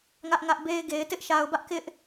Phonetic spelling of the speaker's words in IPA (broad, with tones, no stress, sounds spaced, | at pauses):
ŋ ä˦ ʔ ŋ ä˦ ʔ b e˦ ɪ̯ ɡ e˨ ɪ̯ t ɪ˦ ʔ ʃ a˨ ʊ̯ b ä˦ ʔ k ɪ˦ ʔ